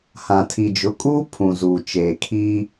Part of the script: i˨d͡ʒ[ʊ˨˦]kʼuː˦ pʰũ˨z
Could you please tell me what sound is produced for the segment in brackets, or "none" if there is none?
ʊ˨˦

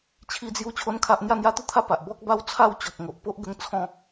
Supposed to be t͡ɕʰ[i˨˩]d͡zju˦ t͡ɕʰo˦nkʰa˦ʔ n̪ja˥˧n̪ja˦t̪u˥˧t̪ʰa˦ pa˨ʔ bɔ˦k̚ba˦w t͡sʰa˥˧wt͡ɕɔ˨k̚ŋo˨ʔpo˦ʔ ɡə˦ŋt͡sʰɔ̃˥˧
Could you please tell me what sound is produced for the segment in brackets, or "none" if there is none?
i˦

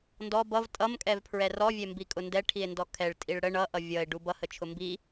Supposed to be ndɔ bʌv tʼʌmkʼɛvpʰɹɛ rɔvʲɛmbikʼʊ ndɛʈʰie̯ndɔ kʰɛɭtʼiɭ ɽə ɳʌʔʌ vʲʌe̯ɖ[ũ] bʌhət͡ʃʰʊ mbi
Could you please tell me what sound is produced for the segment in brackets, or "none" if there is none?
u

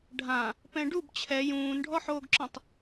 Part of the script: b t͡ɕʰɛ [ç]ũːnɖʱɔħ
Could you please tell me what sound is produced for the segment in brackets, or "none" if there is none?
j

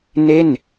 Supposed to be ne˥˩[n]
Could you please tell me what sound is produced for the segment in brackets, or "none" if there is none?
n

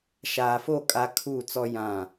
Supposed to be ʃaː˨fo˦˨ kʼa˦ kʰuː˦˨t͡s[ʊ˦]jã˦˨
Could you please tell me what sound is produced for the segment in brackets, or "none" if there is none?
ɔ˦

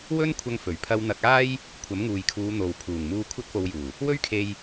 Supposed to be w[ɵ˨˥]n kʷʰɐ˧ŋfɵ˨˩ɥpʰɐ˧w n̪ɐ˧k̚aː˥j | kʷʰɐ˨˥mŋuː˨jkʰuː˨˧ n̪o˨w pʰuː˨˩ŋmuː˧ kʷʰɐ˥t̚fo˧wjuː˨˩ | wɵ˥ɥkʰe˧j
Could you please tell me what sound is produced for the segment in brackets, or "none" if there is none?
ɵ˥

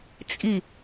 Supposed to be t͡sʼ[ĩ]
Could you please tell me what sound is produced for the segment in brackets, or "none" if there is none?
i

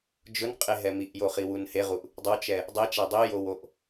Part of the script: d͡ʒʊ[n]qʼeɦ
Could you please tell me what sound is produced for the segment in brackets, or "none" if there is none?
n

